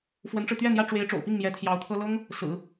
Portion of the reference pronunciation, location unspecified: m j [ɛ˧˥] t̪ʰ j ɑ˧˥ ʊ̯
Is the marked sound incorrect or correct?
correct